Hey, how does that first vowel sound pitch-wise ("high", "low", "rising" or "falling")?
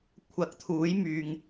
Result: rising